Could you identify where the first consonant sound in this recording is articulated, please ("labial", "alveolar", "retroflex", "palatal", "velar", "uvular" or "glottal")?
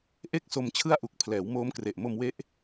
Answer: glottal